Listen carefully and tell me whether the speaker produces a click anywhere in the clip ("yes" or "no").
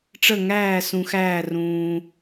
no